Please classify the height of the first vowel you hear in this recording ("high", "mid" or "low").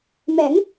mid